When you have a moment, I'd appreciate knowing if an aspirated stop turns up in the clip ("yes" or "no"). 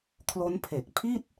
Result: yes